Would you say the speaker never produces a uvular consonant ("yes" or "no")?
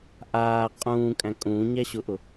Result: no